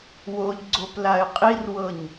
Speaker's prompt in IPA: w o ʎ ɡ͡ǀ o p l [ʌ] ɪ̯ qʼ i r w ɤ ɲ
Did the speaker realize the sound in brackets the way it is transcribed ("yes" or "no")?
no